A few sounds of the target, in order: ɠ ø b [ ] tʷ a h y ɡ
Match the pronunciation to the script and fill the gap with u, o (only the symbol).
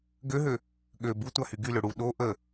u